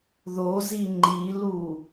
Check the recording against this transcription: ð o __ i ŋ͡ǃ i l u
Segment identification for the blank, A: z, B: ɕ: A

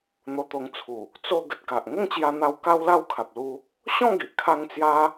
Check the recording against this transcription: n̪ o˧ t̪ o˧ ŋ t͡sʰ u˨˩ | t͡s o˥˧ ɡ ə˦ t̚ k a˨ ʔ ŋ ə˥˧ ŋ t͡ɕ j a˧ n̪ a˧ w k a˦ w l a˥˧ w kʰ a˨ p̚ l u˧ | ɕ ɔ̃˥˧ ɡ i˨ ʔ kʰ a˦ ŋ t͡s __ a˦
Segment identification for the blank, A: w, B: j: B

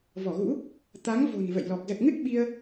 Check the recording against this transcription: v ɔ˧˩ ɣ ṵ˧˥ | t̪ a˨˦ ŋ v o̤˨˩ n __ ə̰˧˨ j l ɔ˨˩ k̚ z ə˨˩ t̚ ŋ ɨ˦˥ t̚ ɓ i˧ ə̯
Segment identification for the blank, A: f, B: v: B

